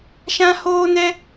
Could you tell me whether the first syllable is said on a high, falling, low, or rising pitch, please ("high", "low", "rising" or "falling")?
high